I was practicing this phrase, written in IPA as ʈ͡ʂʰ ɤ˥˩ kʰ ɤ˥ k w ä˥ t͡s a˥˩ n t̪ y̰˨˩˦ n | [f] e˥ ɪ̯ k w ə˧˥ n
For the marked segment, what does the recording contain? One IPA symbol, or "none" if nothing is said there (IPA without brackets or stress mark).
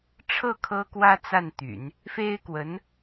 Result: f